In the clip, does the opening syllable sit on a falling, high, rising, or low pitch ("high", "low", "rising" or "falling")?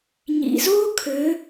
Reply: low